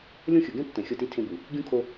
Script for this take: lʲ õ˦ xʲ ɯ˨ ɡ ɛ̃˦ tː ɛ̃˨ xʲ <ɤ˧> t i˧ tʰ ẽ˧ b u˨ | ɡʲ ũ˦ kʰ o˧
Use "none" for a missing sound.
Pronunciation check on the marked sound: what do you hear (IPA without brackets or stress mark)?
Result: ɤ˧